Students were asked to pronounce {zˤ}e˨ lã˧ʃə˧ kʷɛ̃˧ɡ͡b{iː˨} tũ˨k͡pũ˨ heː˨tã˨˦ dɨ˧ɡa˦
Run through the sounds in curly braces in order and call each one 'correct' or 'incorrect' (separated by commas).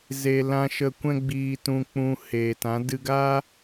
incorrect, correct